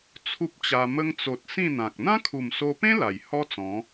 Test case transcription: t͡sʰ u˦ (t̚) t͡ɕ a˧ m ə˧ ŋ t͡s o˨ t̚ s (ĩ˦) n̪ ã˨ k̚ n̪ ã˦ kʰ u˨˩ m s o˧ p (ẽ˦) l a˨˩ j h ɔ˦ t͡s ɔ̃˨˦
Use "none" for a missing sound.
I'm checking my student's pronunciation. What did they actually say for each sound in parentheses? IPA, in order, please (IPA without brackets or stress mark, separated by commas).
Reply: p̚, ĩ˥˧, ẽ˦